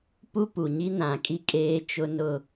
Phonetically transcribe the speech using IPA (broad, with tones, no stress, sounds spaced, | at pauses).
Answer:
p u˦ p u˨ ɲ i˦ n ã˨ kʼ i˦ kʼ eː˦ t͡ʃ ʊ˦ n ʊ˦